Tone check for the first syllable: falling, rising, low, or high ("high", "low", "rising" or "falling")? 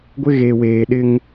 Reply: high